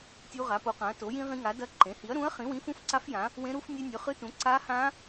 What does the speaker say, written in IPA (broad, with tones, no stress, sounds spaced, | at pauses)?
tʲ u˦˥ ʁ a˩˥ p o˩˥ q ã˩˥ ɐ̯ t o˩˥ j ĩ˦˥ ʁ ĩ˦˥ ŋ a˩˥ d ɐ˦˥ ǃ ẽ˩˥ h i˩˥ ɐ̯ ɾ ũ˩˥ ɐ̯ χ ĩ˩˥ w ĩ˩˥ f ũ˦˥ f ǀ a˦˥ f j ã˩˥ | w ẽ˦˥ ɾ u˦˥ f nʲ e˦˥ nʲ ɵ˩˥ χ ɨ˦˥ t ũ˩˥ ǀ a˦˥ h ã˦˥